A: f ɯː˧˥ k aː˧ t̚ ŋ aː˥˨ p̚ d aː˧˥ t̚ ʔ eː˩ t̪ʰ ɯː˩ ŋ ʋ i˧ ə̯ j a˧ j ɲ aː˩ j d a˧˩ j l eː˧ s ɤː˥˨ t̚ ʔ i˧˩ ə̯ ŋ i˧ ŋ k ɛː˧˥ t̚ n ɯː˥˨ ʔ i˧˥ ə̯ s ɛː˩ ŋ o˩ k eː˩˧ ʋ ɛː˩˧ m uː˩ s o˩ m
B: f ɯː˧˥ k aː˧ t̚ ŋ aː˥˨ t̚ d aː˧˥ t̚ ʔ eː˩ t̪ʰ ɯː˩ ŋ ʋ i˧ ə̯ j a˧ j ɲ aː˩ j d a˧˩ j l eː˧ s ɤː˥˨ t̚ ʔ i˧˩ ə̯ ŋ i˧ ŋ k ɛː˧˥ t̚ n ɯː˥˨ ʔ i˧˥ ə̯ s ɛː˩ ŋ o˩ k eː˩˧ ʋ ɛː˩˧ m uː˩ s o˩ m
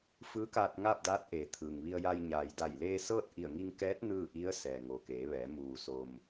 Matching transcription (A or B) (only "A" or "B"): A